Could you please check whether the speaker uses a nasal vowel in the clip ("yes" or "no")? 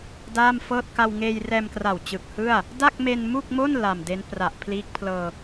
no